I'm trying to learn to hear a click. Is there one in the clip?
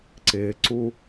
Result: yes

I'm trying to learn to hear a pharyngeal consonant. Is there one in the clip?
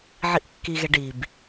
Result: yes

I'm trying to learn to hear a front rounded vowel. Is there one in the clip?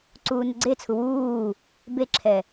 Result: no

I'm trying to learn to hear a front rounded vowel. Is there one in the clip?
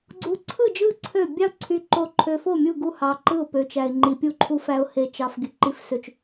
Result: yes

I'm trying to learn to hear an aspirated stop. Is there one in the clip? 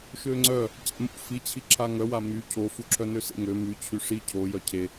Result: yes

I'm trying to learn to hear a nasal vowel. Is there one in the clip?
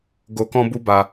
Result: yes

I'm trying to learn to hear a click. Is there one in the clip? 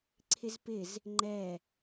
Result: yes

